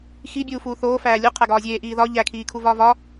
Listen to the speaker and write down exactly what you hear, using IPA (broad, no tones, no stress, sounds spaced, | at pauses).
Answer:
x i bʲ uː f uː θ oː f æː lʲ u qʰ æ ɡ ɒː zʲ eː ʔ iː ð ɒ ʎ æ kʰ iː kʰ u v ɒː v ɒ